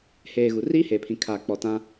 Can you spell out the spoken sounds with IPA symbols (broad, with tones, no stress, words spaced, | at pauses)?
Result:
heː˨ ɣu˨riː˦heː˨pʰĩ˨ kʰaː˨k͡pɔ˨ tã˦